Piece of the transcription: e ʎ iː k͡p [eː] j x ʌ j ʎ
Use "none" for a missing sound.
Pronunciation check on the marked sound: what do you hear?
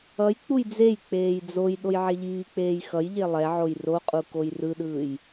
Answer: eː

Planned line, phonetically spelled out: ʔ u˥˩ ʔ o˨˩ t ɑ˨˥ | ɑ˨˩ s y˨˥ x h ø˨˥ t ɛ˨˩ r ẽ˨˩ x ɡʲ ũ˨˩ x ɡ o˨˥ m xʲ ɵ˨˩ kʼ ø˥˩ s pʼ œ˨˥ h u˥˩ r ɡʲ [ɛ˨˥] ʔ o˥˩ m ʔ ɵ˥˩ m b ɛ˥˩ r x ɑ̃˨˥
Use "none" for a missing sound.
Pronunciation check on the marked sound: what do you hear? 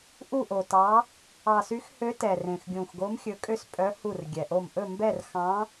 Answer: ɛ˨˩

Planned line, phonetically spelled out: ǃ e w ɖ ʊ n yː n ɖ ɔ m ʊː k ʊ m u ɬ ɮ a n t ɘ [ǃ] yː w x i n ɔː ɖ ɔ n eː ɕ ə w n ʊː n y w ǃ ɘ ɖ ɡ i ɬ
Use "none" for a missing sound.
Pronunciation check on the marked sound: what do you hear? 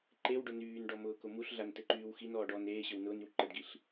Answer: ǃ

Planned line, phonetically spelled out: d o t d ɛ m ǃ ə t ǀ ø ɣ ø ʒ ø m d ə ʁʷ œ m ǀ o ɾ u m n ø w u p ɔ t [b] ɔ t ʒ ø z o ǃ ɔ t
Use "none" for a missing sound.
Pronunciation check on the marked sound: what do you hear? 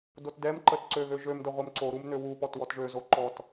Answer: w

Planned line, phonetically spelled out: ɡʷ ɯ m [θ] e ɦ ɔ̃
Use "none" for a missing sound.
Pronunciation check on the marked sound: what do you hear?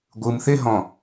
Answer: θ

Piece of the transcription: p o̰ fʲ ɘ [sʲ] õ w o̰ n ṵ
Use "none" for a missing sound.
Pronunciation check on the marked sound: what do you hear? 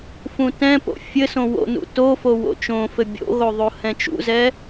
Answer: s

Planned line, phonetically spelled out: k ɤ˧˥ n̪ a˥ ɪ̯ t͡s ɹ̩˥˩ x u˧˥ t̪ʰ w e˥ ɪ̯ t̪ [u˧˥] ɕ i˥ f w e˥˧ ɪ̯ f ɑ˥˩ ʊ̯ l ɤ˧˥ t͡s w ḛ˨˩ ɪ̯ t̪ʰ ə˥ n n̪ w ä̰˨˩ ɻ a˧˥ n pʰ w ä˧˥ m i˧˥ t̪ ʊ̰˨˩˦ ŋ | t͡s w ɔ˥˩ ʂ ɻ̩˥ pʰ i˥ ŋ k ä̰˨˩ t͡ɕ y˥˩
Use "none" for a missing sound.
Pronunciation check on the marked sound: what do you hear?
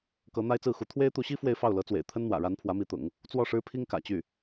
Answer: u˧˥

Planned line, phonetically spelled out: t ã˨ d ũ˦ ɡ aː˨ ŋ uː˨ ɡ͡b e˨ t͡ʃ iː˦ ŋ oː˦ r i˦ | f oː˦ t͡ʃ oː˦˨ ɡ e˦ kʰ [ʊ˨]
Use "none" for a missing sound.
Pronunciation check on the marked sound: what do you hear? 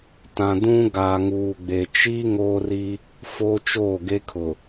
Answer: ʊ˨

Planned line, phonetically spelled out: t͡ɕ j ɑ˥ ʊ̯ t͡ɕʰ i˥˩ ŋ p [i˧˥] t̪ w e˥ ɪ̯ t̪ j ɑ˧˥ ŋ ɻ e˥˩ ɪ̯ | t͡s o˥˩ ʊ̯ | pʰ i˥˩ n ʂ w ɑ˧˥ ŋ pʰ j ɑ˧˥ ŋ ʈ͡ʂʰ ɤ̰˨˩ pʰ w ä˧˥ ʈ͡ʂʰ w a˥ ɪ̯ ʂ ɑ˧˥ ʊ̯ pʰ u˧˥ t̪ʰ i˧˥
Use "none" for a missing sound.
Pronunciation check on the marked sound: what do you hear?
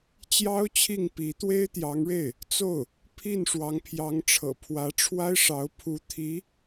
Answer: i˧˥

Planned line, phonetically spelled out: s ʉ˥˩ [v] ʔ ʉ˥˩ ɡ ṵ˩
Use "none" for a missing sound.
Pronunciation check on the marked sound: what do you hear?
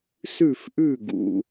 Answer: f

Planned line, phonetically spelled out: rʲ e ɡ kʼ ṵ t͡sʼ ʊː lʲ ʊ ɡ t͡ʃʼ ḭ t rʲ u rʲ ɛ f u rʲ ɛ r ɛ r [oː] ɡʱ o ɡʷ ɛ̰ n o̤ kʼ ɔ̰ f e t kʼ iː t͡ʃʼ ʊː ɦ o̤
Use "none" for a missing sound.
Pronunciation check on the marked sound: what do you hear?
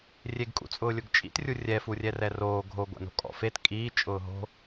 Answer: oː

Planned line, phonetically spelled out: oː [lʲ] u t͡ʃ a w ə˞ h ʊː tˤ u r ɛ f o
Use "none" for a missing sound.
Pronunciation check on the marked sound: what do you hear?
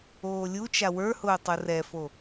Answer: lʲ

